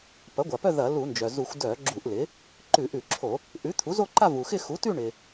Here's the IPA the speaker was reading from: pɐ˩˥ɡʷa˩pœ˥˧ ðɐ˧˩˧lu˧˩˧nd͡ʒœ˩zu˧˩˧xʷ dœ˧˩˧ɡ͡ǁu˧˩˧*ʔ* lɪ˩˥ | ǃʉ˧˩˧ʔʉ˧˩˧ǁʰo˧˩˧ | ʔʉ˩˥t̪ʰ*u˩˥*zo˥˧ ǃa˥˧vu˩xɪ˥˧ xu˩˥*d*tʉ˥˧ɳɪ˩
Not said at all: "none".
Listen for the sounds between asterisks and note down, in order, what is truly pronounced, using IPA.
ʔ, u˩˥, none

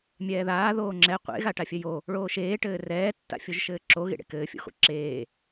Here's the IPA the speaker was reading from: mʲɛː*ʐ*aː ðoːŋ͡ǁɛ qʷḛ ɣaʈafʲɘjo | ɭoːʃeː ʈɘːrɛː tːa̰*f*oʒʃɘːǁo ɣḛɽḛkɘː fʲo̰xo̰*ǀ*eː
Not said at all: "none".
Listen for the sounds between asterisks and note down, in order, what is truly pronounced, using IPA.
ð, fʲ, ǁ

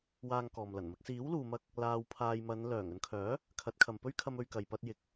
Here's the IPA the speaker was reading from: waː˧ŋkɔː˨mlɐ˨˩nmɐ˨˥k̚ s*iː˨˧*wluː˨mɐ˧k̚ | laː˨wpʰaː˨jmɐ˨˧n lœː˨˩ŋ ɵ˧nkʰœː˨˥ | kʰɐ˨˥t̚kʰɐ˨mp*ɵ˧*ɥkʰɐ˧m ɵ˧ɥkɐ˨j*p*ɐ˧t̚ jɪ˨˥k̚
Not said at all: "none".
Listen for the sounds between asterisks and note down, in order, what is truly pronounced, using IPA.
iː˨˥, ɵ˥, p

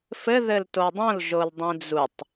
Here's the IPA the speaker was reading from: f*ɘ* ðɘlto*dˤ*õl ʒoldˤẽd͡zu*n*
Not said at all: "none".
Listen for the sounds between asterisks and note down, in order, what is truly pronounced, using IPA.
ɘ, dˤ, tˤ

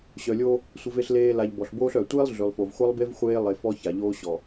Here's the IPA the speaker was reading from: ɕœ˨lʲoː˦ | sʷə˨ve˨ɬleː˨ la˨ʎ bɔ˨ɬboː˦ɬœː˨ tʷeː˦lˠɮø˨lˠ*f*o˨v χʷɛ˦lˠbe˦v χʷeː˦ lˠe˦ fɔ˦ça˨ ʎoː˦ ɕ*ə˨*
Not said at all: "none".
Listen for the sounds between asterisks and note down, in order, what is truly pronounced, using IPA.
f, ɔ˨

